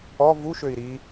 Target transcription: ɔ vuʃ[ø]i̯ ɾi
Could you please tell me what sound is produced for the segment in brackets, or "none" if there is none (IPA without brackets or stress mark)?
ø